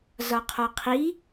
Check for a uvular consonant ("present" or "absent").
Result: present